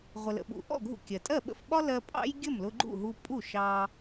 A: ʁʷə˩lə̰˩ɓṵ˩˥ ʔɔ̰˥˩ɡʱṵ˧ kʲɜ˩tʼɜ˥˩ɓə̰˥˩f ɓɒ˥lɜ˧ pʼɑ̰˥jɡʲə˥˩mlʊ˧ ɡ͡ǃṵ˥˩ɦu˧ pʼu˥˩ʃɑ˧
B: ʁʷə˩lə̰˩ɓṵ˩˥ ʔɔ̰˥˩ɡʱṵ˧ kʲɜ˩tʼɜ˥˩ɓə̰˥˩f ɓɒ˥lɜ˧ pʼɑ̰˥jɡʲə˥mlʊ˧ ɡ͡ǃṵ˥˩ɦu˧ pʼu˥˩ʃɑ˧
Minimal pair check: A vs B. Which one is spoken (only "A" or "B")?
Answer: A